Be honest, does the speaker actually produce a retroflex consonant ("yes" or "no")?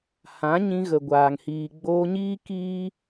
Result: no